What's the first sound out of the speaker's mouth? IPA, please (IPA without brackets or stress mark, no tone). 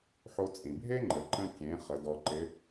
ħ